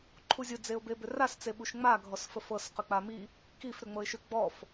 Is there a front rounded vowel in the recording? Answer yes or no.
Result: yes